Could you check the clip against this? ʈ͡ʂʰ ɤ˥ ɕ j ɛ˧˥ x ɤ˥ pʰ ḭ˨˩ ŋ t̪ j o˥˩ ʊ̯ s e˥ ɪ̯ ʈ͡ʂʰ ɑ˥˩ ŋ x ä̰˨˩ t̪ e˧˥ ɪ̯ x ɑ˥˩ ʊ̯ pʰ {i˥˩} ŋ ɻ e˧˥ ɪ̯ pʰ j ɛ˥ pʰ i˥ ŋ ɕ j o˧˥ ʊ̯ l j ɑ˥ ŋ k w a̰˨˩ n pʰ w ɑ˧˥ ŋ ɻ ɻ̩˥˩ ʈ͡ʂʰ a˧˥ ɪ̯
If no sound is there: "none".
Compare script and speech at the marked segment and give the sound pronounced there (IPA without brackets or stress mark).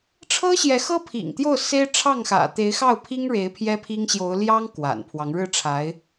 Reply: i˥